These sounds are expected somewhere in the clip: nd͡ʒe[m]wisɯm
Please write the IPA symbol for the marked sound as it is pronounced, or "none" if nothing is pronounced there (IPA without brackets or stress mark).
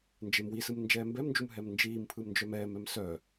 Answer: m